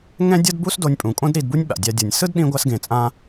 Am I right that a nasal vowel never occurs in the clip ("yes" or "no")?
no